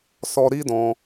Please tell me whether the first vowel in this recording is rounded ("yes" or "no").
yes